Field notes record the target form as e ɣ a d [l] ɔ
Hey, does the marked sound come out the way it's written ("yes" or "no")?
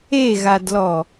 yes